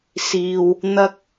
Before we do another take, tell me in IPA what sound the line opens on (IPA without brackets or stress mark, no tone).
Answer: s